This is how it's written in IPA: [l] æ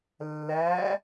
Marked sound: incorrect: lː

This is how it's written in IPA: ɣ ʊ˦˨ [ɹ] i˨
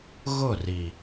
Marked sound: incorrect: r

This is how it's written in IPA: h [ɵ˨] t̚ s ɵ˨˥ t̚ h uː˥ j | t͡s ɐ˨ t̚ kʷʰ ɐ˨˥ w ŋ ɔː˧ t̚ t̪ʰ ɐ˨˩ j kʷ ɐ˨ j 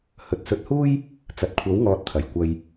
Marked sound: correct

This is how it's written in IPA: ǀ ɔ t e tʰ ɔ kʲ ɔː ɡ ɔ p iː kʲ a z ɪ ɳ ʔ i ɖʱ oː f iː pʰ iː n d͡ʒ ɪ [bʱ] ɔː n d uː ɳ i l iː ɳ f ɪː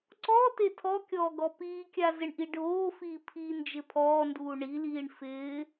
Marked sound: incorrect: pʰ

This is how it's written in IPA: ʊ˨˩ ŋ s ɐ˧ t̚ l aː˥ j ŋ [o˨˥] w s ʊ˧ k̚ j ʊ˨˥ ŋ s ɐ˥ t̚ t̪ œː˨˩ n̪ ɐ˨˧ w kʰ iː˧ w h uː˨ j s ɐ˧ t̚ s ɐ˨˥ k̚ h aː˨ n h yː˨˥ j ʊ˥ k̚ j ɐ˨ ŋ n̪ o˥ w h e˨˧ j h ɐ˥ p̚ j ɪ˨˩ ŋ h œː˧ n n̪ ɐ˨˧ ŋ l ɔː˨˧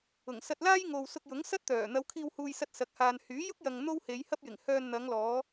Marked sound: incorrect: o˨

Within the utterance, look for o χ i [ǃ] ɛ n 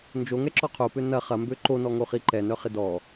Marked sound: correct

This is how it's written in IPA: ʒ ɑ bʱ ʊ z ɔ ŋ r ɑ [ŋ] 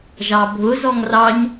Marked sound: incorrect: ɲ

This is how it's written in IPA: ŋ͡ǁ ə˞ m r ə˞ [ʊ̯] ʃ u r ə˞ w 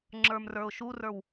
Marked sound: correct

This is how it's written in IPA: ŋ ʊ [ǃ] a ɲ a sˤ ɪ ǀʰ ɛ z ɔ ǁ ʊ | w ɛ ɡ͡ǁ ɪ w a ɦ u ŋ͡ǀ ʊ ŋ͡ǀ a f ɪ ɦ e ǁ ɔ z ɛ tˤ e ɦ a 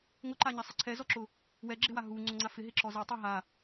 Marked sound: correct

